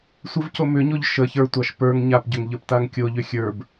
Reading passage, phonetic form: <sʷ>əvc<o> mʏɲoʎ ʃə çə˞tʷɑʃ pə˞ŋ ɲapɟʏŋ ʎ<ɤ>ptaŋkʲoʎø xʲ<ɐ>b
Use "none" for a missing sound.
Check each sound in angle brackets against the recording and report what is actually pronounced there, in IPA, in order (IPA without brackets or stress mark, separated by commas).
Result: sʷ, o, ə˞, ə˞